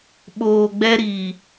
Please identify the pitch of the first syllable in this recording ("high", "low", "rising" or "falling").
low